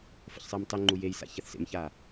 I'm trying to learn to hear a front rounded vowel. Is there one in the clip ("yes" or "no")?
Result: no